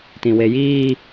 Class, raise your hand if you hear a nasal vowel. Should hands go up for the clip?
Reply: yes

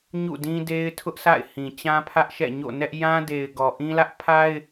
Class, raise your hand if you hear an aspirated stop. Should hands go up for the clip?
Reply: yes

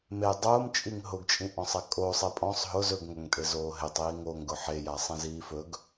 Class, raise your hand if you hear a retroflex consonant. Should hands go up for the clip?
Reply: no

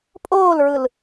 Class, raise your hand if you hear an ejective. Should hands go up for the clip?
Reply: yes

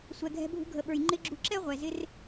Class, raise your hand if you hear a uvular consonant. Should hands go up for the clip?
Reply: yes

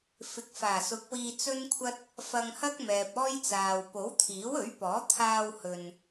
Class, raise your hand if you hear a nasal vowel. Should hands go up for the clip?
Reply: no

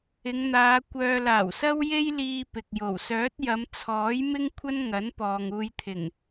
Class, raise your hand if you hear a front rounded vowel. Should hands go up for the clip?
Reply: yes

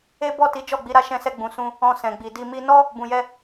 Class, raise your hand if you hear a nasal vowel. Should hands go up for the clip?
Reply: yes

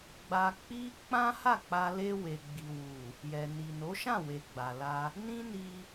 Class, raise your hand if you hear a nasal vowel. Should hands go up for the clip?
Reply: yes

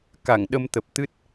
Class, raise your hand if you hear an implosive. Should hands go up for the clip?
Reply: yes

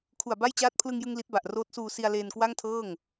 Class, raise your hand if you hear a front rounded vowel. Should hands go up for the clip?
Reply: no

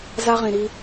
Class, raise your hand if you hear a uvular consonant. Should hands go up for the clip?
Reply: yes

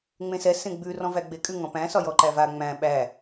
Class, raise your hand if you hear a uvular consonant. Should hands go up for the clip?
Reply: no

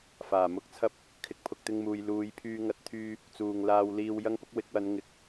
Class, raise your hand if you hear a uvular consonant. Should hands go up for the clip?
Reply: no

